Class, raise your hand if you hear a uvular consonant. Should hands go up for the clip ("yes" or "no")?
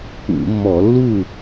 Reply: no